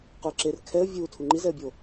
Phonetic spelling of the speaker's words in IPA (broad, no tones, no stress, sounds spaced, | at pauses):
q u ɪ̯ ǁ e r kʰ ɛ ə̯ vʲ u tʰ u ŋ͡ǃ i z ɛ ə̯ bʲ o